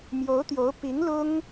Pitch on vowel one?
rising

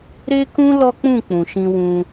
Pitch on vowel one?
high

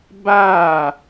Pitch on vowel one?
falling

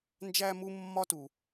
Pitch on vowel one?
high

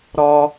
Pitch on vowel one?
high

